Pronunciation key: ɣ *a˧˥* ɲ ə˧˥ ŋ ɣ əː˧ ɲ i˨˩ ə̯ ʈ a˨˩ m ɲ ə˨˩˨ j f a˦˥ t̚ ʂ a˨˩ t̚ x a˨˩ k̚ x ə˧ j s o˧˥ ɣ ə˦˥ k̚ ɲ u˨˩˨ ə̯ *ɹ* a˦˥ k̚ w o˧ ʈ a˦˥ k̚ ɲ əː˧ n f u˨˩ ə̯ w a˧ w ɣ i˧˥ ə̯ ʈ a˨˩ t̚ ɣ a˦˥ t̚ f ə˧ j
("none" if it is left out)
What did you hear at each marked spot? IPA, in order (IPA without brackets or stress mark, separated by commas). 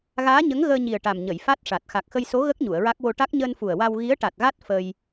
aː˧˥, ɹ